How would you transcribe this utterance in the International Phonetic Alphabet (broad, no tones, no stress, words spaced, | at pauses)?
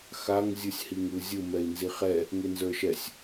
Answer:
xaŋ zʲɯsʲhiŋɯzʲɯ mɛi̯nziχɛ | ŋenzə˞ʃɛsʲ